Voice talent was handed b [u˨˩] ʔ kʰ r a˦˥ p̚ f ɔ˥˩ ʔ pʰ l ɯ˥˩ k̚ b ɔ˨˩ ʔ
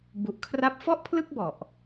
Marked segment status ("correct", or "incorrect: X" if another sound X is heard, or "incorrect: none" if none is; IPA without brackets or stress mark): correct